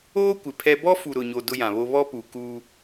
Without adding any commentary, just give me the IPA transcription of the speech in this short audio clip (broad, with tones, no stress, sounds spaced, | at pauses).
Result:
oː˦ kʷ ɪ˨ pʰ ɛ˦ b ɔ˦ f u˨ ɾ ʊ˨ ɲ o˨ d ʊ˦ j ã˨ β o˦ β ɔ˦ p u˨ k u˦